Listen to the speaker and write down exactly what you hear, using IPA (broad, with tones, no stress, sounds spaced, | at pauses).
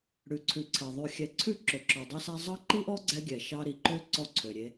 ɽ ʉ˨ ǀʰ ʉ˨ ǀʰ ɛ˨ ðˤ ʉ˨ xʲ ɛ˨ ǀʰ ʉ˦ ǁ ø˨ ǁ ɔ˨ dˤ ɛ˦ s æ˦ zˤ ɑ˦ ǃ i˦ ʔ ɔ˦ ɡ͡ǀ ɛ˦ ɡʲ ɛ˨ ʃ ɑ˦ ɾ i˨ ǃ ø˦ ǀ ɔ˦ ǀʰ ø˨ ɾʲ e˦